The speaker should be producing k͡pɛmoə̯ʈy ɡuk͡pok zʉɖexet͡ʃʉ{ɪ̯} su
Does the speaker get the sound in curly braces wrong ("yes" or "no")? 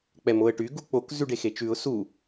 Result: yes